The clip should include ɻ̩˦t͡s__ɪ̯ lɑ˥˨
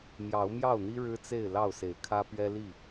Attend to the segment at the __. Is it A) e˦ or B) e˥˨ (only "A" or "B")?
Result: B